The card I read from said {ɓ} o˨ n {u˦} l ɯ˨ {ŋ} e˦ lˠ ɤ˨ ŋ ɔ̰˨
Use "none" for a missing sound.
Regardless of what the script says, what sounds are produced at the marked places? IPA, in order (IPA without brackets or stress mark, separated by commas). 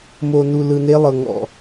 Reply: m, u˨, n